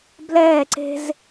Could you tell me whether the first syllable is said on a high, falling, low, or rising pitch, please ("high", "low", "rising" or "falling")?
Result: falling